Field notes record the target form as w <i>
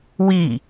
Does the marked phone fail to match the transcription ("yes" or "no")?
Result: no